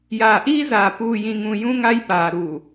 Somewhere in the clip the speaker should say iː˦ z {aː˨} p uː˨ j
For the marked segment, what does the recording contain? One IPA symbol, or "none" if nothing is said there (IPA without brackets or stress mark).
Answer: aː˨